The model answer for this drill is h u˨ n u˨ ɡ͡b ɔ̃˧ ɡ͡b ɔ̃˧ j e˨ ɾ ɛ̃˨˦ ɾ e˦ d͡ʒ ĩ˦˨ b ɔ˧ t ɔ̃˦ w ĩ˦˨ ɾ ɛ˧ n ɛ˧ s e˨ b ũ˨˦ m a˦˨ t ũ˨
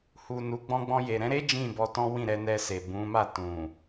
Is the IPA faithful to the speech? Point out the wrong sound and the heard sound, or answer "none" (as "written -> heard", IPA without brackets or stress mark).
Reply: none